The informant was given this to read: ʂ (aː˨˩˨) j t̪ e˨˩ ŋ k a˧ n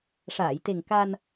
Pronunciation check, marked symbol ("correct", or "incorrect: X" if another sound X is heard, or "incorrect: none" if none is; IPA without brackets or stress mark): correct